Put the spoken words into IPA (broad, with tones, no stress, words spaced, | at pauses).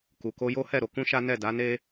ku˨ko˧jo˦hɛ˦˨ ɾo˧kũ˦ʃa˦ nɛ˦˨da˨˦ne˦